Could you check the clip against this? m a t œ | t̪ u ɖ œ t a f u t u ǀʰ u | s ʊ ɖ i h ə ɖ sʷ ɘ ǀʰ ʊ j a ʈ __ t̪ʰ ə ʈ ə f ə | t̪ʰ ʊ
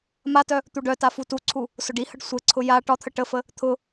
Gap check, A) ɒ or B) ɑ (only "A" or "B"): A